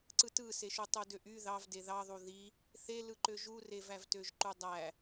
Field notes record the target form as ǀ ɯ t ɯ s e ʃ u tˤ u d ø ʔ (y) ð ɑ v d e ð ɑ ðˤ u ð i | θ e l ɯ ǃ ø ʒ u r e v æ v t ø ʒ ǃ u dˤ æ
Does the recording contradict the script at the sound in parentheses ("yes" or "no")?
no